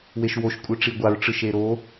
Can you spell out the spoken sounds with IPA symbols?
w e ʃ w o ʃ kʷʼ ɯ ʈ͡ʂ i ɡʷ a ɹ ʈ͡ʂ ɯ ʃ e ɾ o

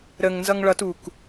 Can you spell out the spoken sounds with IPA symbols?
ɾ ə ŋ n z ʌ ŋ ɭ ʌ t u k

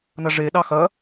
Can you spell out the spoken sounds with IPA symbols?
n ɐ ʐ e ɗ ɑ x ɐ

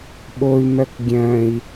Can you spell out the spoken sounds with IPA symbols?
ɓ o y̯ m œ k ɡʲ œ̃ i̯

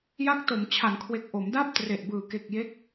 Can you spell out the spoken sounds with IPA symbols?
j a˦˥ k̚ t o˩˦ m t͡ɕʰ a˩˦ n kʰ w e˨˩ k̚ ʔ o˩˦ m d a˥˩ p̚ t r e˨˩ ʔ b ɯː˨˩ k e˨˩ k̚ j e˦˥ k̚

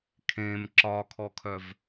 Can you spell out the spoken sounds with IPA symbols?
kʰ ẽ m ǁ ɒ kʰ ɔ kʰ œ v

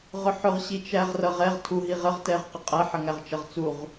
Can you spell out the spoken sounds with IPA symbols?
ʁ ʊ ħ ʊ ʁ ɕ i t͡ʃ æ ʁ r ʌ ʁ ɛ ʁ tʰ u ɦ i ʁ ə ʁ t ɛ ʁ q ə qʼ æ ħ ə ŋ æ ʁ t͡ʃ ʌ ʁ t͡s u ʁ

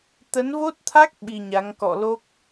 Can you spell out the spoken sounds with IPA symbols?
t̪ ə˨˦ n v o˦˥ t̚ t̪ʰ a˦˥ k̚ ɓ i˧ ɲ a˨˦ ŋ k ɔ̰˧˨ l o˦˥ k̚

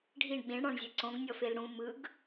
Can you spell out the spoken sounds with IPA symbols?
ɖʱ i ɳ ɓ ĩ ɳ ɽ ɔ̃ ɳ zʲ ɛ ǀ õ ɡ nʲ ɔ f e l ɽ ũ m ɯ ɡ

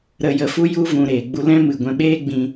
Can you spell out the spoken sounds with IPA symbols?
ɾ ə˨ j ə˨ f u˧ j u˧ v ũ˨ ɾ eː˨ ɡ͡b u˧ l ɛ̃˦ m ɨ˨ ɡʷ ɛ̃˧ ɓ eː˦ ɡ͡b ĩ˧

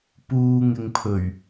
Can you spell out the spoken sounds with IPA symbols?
p uː˨ ŋ ɪ˨ ŋ pʰ ɵ˨˩ ɥ

